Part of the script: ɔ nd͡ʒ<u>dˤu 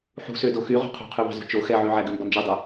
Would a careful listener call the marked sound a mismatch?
yes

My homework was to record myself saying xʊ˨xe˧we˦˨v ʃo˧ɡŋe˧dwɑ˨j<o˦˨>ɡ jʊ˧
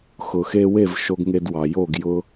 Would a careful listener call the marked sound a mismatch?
no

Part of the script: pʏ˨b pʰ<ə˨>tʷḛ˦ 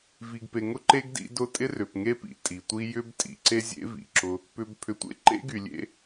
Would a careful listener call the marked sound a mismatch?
yes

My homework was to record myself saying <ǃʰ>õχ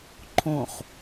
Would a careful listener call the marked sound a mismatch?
no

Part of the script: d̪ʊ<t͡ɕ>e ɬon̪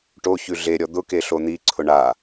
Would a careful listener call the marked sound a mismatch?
yes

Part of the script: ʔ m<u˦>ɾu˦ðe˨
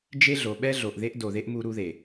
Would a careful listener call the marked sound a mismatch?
no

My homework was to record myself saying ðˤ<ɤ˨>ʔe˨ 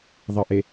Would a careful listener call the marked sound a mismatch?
no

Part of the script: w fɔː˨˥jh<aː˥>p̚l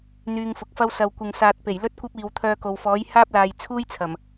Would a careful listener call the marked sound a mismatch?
no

